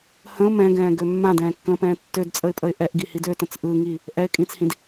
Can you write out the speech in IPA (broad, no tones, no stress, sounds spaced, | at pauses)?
h ə̃ ʊ̯ m ɛ̃ ɡ ɛ̃ː ɡ ø mː ã d ɛ̃ː kː ə̃ː p ɛ̃ː tː ø d t͡sʼ ə ɪ̯ pʼ ə ɪ̯ ʔ ɛ ʔ ɡ i h i d ø t ə̃ t͡s ʔ ɯ ŋ i | ʔ ɛ ɪ̯ kʼ ĩː t͡s h ĩ d